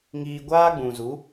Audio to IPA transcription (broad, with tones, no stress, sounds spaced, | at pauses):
ŋ iː˧ ɡʷ aː˦ ɡ͡b ũ˨ z u˨˦